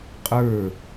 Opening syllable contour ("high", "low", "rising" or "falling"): falling